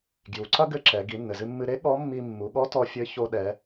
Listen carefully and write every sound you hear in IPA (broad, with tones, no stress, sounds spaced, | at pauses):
ɡ j u˩˧ ǀ ɐ˥ ɡ ɘ˧˥ ǁ ɛ˩˧ ɡ i˩˧ nː ɘ˩ z ɨ˧ mː ɨ˧ ɾ e˧˥ ɠ ɔ˧˥ mː i˧ mː u˩˧ ɠ ɔ˧˥ t ɔ˧ fʲ ɘ˧˥ ç o˧ ɗ ɛ˩˧